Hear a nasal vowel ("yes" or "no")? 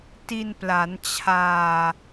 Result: no